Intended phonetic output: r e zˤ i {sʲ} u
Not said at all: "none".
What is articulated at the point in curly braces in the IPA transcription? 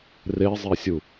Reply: sʲ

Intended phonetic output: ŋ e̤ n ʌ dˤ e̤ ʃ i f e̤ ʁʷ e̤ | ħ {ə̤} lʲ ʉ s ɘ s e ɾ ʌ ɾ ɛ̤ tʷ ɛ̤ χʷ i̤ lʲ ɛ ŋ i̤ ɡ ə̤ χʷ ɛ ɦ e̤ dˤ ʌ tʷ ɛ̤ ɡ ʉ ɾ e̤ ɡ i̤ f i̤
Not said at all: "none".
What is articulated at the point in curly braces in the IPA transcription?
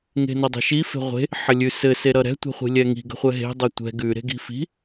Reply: ə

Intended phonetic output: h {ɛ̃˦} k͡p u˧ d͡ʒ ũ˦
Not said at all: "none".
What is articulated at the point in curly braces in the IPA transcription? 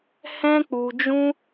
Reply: ɛ̃˦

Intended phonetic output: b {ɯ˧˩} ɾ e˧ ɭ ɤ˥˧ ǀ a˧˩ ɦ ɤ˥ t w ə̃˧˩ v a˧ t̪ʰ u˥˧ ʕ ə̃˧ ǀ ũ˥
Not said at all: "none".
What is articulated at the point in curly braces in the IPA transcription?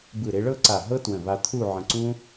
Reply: ɯ˧˩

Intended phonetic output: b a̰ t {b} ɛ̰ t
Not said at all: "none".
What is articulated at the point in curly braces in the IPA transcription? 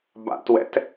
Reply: w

